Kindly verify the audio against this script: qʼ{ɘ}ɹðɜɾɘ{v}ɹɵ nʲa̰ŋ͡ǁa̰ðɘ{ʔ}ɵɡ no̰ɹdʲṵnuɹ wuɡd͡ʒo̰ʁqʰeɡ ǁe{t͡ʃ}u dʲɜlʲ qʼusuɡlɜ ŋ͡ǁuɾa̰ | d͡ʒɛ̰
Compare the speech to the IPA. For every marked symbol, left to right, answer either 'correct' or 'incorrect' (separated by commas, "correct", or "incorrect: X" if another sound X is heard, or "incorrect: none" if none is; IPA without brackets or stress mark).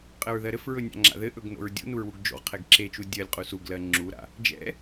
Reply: correct, incorrect: f, correct, correct